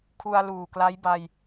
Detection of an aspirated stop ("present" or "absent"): present